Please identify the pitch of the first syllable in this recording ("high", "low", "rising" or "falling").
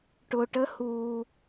low